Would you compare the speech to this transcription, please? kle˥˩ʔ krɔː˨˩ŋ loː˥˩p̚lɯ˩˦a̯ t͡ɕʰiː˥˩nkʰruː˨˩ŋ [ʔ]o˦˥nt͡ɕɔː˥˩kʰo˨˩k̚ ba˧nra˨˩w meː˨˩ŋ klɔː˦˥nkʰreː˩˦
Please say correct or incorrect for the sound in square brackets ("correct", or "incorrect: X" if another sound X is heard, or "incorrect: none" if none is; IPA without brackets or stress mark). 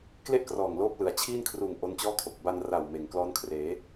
correct